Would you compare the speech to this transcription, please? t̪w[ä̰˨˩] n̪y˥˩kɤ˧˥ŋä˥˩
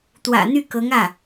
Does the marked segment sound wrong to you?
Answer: no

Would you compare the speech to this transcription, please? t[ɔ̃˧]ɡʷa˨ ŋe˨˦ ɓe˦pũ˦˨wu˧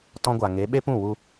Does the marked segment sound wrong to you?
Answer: no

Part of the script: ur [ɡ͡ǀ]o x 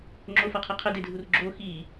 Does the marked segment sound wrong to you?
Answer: yes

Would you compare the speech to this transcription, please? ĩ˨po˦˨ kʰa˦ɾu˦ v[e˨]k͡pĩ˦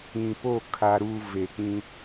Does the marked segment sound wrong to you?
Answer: no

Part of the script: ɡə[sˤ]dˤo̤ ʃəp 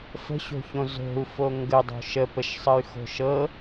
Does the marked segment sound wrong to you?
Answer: yes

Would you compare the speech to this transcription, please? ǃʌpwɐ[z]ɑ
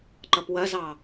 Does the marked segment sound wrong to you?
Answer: no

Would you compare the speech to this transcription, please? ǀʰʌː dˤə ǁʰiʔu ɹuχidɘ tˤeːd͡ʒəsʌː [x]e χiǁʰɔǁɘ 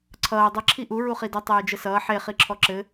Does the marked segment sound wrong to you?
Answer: yes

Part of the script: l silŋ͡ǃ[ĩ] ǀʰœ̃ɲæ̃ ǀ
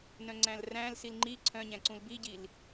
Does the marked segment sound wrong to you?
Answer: yes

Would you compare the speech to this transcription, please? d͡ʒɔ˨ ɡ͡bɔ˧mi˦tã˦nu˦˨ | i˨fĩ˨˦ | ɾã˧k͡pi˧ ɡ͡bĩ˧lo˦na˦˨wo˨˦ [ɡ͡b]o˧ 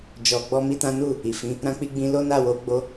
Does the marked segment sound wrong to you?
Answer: no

